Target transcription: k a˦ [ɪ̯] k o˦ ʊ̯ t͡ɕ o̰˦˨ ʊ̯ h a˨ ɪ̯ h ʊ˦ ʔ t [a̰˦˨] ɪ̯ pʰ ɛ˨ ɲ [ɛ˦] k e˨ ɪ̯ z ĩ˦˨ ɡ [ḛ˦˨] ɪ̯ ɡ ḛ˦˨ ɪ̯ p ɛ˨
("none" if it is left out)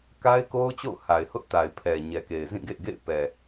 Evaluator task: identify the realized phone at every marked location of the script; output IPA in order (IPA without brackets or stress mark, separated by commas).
ɪ̯, a˨, ɛ˨, ḛ˦˨